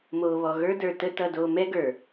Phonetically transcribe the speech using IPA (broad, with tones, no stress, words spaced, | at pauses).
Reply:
moː˨βɔ˨ ɣə˞˦də˞˨ tə˦ tʌ˦doː˦ mɛ˦ɡə˞˨